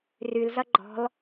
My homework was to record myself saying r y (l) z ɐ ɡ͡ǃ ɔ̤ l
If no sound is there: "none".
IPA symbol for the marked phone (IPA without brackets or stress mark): l